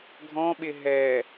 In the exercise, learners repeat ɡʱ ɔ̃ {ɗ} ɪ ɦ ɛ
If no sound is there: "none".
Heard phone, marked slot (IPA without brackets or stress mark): ɓ